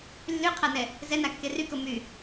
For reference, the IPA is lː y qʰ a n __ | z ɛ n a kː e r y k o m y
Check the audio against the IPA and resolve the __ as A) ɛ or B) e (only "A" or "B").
A